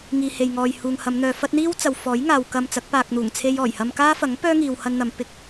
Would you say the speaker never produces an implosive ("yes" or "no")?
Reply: yes